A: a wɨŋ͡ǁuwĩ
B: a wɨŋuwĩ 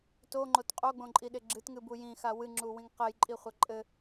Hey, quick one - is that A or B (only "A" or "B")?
A